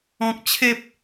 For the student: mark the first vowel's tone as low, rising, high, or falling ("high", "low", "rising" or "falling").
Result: low